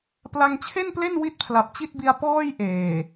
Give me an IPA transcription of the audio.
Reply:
pla˧ŋt͡ɕʰe˥˩nple˥˩n wi˥˩t̚pʰla˨˩p̚t͡ɕi˥˩t̚bi˧a̯ pɔː˥˩jʔeː˨˩

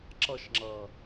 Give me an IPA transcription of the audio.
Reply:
ǁʌʃŋ͡ǁʌː

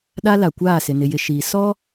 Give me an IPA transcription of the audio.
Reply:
ɗa˦la˨kʷaː˦˨sɪ˨ nɪ˨jɪ˨ ʃiː˨ sɔ˦

